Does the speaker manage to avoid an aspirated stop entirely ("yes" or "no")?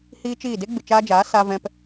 yes